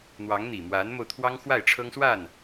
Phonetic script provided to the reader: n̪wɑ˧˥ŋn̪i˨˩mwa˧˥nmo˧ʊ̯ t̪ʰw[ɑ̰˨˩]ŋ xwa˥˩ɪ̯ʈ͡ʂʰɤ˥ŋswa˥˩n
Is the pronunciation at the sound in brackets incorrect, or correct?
incorrect: ɑ˥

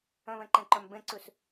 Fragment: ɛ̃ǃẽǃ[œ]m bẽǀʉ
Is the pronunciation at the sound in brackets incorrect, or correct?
correct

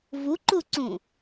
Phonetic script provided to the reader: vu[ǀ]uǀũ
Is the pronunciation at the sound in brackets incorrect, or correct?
incorrect: ǃ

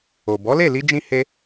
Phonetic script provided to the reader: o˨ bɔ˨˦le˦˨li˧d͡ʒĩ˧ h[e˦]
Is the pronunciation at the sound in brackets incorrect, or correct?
incorrect: e˧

